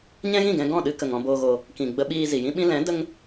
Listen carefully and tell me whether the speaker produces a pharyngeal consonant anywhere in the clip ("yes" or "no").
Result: no